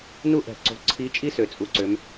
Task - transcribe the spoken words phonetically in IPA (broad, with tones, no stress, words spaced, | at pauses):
nu˦ʔɛ̤˨˩ǀo̤˨˦ ǀʰi˨˦ t͡ʃʼi˦sø˨˩t͡sʼu˨˦ ǀø˨˦m